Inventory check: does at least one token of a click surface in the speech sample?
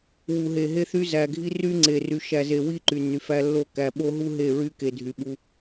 yes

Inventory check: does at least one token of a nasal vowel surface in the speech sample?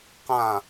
yes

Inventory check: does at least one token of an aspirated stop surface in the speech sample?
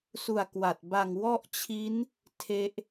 yes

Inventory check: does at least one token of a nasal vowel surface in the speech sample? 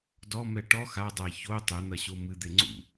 no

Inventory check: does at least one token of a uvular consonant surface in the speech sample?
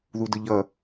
no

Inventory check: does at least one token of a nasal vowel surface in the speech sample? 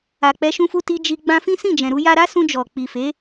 yes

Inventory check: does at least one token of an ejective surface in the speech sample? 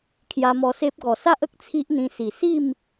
no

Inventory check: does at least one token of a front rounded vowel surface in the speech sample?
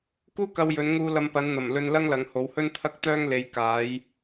yes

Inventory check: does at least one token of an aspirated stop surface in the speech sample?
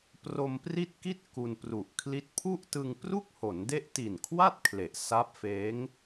yes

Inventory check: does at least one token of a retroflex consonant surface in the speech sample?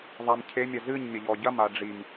yes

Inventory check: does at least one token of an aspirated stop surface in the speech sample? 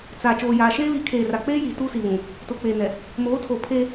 yes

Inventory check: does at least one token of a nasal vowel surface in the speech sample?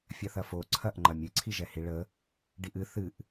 no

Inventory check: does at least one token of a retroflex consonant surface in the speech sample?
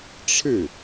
yes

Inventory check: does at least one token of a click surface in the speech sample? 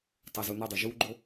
yes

